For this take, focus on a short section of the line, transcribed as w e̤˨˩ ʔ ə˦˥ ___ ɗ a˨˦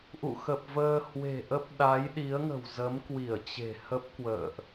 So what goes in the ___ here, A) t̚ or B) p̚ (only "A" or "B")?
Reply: B